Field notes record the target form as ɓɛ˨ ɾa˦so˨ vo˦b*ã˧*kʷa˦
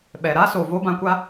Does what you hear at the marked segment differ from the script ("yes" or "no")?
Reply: no